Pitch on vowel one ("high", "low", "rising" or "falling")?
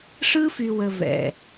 high